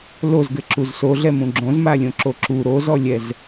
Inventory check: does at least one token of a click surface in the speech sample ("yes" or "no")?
yes